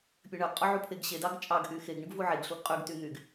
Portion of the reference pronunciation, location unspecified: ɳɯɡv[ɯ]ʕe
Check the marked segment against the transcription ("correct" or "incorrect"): incorrect